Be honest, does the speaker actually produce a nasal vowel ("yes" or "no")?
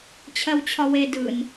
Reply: no